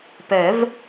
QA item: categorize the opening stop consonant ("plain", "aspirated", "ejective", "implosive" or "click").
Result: plain